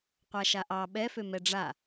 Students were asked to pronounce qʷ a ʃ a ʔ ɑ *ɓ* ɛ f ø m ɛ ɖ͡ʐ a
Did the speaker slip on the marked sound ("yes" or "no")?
no